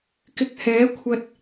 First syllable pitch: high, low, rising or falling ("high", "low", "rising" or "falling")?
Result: rising